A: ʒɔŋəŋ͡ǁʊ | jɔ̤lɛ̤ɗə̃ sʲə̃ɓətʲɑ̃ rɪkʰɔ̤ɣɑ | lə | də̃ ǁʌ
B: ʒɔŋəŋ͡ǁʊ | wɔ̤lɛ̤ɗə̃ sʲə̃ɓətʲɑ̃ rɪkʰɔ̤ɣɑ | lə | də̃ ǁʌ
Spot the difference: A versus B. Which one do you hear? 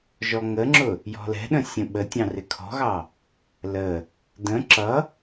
A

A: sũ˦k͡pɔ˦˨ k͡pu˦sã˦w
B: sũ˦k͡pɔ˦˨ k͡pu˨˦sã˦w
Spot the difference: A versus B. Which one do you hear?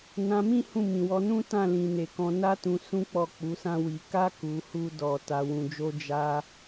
B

